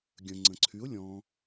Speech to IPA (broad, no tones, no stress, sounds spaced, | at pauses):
ɡʲ ə̃ ŋ͡ǀ ə̃ ǀʰ y ʊ̯ lʲ ɔ̃